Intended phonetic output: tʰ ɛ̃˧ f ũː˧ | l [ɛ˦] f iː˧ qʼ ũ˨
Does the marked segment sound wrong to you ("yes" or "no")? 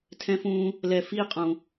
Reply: yes